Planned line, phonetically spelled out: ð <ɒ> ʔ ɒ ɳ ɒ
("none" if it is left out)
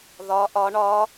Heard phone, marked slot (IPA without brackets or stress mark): ɒ